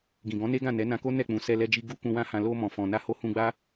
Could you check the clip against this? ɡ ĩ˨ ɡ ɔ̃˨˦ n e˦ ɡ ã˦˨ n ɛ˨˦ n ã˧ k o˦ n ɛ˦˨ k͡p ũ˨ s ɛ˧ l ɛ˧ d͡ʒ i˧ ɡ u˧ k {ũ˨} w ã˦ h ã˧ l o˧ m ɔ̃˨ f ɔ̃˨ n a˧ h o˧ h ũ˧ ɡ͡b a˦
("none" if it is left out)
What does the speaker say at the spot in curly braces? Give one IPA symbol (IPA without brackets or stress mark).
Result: ũ˧